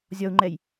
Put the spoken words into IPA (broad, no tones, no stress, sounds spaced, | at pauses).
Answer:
zʲ ɒ u̯ ŋ͡ǃ ɛ j